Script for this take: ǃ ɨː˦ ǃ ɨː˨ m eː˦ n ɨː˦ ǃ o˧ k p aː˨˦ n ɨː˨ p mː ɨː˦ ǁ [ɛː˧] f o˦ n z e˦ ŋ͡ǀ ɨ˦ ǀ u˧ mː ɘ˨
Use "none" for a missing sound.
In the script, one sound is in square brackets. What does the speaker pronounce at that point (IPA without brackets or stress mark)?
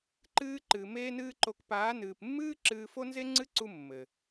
ɨː˧